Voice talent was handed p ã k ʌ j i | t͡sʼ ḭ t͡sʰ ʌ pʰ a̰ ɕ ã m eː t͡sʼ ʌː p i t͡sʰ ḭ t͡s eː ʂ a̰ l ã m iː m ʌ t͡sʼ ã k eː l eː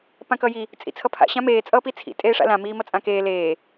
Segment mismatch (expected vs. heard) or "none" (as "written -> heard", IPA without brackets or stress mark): t͡s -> tʼ